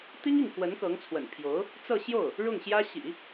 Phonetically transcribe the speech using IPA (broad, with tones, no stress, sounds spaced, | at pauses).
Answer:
t̪ i˥ ŋ i˥˩ ŋ k w ə˧˥ n k ɤ˧˥ ŋ t͡sʰ w ə̰˨˩ n pʰ j o˧˥ ʊ̯ | t͡s ɤ˥˧ ɕ j o˥˩ ʊ̯ | ɻ ʊ˥˩ ŋ ɕ j ä˥ ɕ ḭ˨˩˦